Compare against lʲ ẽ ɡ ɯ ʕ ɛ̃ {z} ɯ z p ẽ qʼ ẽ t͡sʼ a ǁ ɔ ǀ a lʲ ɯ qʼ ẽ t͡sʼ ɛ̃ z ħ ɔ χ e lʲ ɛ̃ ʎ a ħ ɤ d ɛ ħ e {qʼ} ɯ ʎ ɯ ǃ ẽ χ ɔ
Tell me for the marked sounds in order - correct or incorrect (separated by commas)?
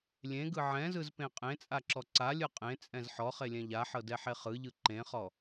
correct, incorrect